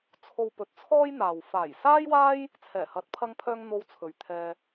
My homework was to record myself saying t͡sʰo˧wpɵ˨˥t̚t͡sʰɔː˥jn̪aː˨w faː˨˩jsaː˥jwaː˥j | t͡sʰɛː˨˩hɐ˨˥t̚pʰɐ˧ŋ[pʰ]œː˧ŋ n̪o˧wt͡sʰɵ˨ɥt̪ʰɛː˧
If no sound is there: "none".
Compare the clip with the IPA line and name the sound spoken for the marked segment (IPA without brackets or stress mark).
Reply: pʰ